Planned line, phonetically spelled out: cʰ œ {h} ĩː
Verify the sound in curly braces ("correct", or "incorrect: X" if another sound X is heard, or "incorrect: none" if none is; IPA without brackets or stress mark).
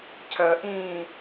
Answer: incorrect: ʔ